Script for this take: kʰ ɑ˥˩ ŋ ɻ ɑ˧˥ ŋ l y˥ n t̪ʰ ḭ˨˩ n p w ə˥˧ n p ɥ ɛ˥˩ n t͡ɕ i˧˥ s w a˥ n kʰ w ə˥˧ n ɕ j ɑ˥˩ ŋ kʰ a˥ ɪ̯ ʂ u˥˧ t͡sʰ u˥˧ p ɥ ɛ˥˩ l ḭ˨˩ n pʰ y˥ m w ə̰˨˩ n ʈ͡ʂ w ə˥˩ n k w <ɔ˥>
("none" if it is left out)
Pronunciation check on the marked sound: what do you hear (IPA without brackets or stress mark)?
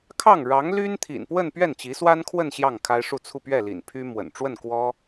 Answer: ɔ˥